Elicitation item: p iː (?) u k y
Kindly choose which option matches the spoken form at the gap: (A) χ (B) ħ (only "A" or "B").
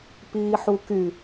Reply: B